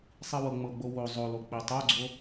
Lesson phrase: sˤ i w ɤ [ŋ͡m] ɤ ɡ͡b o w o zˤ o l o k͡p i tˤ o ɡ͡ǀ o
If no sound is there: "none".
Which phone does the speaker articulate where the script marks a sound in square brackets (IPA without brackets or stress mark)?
ŋ͡m